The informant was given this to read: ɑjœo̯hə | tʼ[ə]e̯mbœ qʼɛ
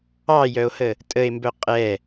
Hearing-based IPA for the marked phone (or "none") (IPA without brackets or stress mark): ə